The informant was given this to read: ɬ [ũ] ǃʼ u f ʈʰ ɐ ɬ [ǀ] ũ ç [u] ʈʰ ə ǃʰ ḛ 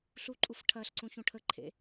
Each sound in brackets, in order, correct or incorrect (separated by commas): incorrect, correct, incorrect